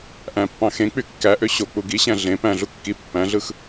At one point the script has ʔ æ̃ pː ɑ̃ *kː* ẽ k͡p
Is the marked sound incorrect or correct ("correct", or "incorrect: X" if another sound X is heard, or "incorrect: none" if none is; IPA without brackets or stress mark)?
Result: incorrect: x